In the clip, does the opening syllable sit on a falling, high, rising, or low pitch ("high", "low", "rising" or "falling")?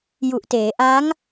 low